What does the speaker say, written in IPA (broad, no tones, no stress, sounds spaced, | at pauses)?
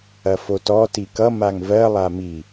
ɐ f o t ɔ t i k ʌ m a ŋ v ɜ lˠ a m i